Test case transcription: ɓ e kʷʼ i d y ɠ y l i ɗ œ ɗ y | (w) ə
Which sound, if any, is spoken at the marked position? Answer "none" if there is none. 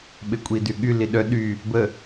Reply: b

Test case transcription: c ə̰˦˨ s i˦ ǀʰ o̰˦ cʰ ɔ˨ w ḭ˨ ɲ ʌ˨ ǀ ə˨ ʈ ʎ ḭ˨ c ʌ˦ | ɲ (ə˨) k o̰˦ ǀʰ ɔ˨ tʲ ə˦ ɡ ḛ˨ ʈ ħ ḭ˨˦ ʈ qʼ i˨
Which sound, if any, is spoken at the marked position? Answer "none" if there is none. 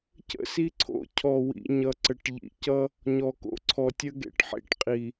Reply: ɔ˨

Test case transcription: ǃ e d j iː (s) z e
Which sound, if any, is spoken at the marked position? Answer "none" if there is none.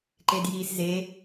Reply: s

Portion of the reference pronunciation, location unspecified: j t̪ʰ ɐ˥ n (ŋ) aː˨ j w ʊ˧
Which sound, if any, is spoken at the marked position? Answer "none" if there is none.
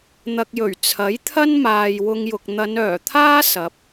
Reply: m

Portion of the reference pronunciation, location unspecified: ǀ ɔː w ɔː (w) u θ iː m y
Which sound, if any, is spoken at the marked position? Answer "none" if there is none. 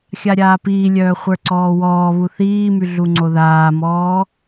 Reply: β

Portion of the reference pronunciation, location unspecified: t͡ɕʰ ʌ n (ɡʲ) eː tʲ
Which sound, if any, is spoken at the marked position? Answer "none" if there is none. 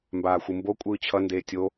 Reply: d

